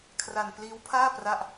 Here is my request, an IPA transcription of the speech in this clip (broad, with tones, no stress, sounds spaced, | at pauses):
kʰ r a˧ n p l iː˦˥ w pʰ aː˥˩ p r a˥˩ ʔ